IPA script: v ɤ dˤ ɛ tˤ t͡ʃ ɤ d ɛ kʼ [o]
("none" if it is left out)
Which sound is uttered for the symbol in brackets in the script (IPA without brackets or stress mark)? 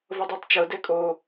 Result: o